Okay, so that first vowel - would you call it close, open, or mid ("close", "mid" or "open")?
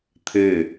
mid